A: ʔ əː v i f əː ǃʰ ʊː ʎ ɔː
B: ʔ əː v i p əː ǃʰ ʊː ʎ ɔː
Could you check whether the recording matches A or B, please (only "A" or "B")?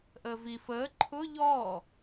A